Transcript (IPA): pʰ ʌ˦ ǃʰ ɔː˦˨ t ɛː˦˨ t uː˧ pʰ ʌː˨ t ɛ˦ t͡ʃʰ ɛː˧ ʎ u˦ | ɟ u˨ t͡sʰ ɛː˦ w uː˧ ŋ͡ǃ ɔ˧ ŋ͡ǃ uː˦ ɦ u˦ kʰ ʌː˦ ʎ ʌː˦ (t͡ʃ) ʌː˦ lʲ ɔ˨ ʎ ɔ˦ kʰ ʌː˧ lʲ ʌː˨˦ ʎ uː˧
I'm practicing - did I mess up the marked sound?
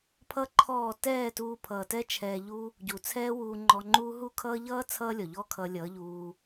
yes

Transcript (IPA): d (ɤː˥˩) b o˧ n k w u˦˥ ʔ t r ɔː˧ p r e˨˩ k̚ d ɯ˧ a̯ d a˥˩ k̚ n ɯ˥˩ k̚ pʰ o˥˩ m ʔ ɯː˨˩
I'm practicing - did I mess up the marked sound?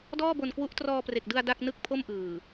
yes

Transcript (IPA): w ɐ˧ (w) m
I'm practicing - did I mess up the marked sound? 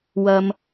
yes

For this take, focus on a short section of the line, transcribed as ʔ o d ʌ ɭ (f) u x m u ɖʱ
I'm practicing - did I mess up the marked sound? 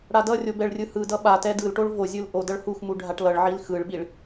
yes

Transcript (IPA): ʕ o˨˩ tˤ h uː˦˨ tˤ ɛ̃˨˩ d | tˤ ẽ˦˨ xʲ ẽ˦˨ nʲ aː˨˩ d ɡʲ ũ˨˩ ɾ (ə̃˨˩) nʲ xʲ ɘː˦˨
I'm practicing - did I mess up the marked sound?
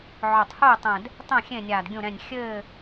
yes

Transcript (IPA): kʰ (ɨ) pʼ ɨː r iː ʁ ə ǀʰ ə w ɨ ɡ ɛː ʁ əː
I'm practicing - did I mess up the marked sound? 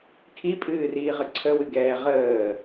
yes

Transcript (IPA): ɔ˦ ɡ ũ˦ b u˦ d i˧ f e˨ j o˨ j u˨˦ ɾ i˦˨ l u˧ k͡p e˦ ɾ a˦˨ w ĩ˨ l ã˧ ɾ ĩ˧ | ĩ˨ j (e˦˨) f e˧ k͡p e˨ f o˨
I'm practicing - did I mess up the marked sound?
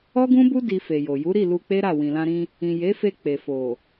yes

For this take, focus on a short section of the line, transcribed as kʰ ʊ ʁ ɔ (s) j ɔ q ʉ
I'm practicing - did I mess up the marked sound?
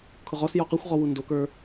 no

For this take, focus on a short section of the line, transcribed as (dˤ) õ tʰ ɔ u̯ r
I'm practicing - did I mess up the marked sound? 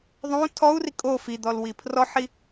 yes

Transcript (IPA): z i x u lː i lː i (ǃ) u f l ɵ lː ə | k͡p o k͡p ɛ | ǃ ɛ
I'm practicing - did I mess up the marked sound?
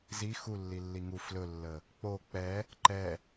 yes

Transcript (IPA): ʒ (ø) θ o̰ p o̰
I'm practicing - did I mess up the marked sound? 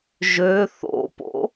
no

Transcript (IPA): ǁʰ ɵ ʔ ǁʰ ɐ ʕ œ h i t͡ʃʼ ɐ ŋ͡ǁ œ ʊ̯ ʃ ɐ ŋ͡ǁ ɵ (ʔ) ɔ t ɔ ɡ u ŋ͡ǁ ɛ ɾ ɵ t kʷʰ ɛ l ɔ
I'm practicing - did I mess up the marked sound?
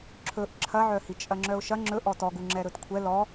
no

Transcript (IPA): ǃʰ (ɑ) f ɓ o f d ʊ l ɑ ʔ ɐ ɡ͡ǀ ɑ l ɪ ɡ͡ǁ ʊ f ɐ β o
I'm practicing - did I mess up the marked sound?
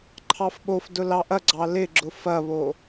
no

